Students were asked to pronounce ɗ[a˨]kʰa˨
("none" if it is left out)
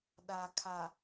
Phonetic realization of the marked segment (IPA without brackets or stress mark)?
a˨